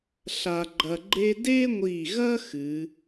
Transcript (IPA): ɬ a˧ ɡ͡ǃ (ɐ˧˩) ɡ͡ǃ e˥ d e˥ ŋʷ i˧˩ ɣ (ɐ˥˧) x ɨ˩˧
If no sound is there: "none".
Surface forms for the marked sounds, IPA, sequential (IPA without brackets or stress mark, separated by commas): ɐ˧, ɐ˥